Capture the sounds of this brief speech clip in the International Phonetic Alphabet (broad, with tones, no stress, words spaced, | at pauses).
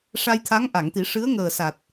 ʂa˧jt̪ʰa˧˥ŋ ʔa˨˩˨ŋt̪i˨˩˦ ʂɨ˧˥ə̯ŋəː˨˩sa˨˩t̚